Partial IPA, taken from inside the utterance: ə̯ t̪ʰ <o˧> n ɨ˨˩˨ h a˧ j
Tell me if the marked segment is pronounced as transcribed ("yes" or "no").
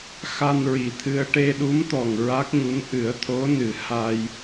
no